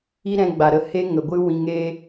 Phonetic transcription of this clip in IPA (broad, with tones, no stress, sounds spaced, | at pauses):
i˦ ɾ ɛ̃˧ ɡ͡b a˨ ɾ ə˧ h e˦ ŋ ə˨ ɡʷ ɨ˦ w ĩ˧ ŋ e˦